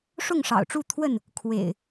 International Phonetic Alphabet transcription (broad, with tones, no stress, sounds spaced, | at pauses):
ʂ ʊ˥˨ ŋ ʂ ɑ̰˨˩ ʊ̯ ʈ͡ʂ u˥˨ t̪ʰ w ə˥˨ n | kʰ w ḛ˨˩ ɪ̯